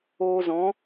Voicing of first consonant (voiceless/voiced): voiced